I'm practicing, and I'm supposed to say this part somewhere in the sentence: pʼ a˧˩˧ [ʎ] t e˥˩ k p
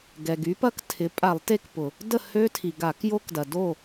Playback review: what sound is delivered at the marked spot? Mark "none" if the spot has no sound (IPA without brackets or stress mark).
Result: lˠ